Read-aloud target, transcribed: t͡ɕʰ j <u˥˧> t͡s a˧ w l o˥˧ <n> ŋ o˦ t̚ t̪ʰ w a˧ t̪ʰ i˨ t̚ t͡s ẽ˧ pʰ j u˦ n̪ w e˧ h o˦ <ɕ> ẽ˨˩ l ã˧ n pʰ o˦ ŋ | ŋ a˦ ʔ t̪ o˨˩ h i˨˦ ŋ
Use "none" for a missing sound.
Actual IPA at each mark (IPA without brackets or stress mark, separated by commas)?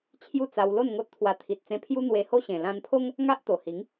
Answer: u˥˧, n, ɕ